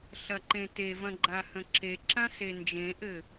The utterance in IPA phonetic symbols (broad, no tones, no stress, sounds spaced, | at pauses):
ɬ ɐ ǃ ẽ t e v ɐ̃ ɡ͡ǃ a h ə̃ ǁ e ǁ ã s e n d͡ʒ ẽ ʔ ɘ